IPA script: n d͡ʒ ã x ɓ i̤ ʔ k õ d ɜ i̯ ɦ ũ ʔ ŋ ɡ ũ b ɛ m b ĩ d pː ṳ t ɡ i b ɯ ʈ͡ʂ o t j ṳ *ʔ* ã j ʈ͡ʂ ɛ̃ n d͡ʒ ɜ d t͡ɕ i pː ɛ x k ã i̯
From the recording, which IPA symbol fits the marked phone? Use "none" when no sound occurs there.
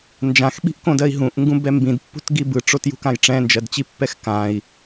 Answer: k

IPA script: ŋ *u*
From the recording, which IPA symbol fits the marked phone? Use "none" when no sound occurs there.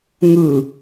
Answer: ɯ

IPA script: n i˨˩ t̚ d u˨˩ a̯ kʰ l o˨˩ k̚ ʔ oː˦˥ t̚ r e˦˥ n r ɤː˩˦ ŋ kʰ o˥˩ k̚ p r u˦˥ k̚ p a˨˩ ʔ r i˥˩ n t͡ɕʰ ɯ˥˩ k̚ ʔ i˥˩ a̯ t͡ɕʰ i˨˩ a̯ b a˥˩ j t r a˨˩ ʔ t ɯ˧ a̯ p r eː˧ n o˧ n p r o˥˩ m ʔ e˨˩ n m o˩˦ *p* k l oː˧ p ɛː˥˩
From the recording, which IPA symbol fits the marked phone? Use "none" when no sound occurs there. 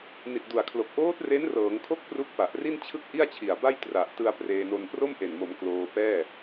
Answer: m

